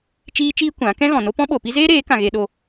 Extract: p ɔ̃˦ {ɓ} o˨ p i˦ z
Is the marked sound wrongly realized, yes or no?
no